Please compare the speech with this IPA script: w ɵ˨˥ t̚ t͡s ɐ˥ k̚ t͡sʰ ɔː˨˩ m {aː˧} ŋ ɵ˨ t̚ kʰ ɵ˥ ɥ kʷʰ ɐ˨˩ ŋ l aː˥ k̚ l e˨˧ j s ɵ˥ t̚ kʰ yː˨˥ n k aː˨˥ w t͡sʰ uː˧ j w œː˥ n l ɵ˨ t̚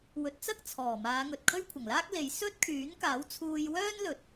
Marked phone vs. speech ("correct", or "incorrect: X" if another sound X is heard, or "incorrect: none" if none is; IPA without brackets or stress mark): incorrect: aː˨˧